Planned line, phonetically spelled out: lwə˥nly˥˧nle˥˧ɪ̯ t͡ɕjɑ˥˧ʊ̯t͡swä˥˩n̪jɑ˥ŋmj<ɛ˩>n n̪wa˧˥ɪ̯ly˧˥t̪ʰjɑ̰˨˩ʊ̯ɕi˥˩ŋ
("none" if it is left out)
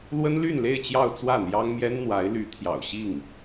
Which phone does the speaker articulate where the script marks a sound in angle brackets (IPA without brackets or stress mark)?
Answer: ɛ˥